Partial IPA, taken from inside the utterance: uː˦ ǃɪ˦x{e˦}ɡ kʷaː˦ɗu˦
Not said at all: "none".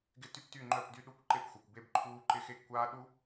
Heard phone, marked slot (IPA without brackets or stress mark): e˦